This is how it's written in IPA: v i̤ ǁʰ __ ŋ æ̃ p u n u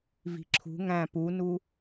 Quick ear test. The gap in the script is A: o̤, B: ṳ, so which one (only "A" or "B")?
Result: B